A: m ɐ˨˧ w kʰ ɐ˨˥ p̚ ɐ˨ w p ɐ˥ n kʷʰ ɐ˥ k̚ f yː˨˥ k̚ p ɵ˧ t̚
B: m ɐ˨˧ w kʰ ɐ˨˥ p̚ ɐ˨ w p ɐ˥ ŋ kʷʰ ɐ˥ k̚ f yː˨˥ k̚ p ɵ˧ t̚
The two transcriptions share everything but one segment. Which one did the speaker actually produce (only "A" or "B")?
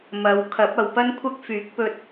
A